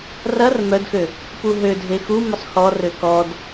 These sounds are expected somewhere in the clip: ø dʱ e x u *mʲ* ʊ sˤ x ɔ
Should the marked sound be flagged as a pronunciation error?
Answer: yes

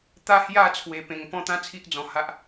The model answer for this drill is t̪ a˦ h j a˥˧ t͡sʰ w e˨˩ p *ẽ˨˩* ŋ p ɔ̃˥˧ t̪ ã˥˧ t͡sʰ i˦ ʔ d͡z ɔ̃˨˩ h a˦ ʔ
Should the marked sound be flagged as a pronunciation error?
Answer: no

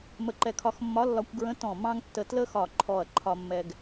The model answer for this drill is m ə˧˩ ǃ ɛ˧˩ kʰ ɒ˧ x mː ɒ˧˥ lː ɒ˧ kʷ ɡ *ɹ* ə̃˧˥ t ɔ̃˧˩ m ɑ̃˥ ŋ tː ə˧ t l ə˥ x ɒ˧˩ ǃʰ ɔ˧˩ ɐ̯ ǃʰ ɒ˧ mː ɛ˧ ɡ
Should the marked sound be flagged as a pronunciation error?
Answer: no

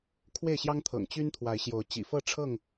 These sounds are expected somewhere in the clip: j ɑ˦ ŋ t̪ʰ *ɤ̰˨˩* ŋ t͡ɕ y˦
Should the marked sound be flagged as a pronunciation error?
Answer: no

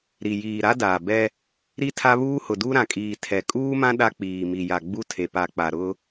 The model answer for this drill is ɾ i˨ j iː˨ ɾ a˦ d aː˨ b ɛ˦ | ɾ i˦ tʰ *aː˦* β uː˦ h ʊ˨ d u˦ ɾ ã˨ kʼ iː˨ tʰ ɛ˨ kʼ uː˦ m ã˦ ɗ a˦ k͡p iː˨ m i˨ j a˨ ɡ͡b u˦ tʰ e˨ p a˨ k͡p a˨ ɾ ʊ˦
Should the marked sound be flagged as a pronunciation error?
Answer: yes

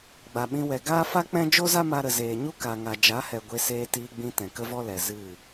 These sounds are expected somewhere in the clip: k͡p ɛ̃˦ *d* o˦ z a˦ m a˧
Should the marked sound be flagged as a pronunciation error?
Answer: yes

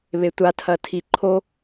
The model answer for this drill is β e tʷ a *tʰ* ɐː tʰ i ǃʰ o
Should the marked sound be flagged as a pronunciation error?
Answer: no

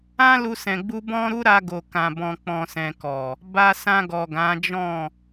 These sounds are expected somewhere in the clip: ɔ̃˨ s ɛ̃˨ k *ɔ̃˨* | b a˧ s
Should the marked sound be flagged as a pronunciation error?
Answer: yes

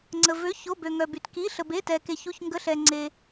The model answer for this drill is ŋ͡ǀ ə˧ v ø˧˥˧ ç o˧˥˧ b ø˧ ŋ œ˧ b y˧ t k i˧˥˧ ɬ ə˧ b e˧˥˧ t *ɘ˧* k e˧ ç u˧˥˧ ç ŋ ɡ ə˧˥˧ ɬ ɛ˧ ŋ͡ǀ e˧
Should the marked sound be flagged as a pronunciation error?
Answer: yes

